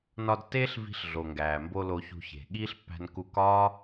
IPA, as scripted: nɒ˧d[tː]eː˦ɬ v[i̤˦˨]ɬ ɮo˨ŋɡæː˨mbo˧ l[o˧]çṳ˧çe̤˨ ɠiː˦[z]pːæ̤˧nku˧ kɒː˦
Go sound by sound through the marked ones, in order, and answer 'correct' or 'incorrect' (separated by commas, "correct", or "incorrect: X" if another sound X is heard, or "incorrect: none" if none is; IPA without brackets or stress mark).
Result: correct, incorrect: i̤˧, correct, incorrect: ɬ